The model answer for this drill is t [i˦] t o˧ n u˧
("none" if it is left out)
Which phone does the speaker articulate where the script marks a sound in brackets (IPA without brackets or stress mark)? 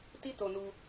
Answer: i˦